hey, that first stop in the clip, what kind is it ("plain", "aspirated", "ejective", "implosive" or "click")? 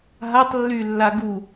plain